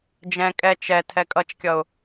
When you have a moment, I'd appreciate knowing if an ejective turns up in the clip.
yes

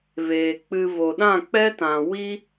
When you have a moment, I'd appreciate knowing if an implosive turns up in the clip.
yes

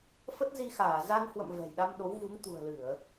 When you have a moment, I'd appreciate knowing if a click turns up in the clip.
no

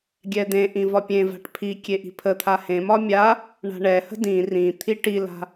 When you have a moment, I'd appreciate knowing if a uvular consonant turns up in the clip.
no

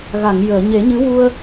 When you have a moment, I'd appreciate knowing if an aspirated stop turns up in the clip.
no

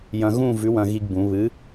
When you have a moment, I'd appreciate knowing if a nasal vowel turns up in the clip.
yes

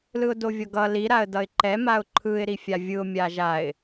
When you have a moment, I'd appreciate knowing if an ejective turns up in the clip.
no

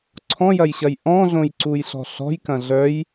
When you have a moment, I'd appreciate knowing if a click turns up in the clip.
yes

